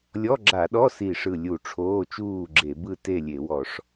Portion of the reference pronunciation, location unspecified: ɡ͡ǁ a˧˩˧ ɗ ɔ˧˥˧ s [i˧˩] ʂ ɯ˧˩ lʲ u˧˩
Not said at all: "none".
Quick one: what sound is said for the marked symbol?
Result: i˧˩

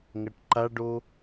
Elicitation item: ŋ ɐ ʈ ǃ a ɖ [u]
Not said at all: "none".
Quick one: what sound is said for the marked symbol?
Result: o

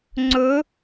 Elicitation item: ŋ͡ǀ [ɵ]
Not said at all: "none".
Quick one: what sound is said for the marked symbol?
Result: ɵ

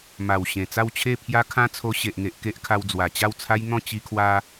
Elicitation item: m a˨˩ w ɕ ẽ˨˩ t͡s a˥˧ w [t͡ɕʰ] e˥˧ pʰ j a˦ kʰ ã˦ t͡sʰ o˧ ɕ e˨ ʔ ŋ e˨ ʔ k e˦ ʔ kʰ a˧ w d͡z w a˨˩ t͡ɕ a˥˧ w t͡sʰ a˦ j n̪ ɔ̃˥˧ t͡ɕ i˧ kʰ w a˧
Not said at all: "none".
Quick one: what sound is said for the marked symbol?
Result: t͡ɕʰ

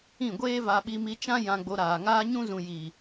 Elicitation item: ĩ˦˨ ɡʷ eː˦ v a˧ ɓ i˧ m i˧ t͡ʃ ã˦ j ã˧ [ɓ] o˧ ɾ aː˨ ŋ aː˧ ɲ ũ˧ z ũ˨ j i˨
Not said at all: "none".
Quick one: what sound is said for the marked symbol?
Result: ɡ͡b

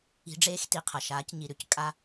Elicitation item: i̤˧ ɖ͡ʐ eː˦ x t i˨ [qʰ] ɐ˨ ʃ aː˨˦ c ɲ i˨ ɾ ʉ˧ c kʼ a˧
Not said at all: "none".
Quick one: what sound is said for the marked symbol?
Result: qʰ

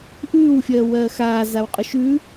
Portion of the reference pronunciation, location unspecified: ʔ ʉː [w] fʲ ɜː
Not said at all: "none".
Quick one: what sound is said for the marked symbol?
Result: w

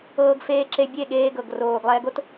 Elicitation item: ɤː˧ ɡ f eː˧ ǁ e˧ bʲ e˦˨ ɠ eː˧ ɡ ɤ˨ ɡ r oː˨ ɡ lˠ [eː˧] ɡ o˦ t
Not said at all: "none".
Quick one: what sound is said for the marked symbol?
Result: ɛː˧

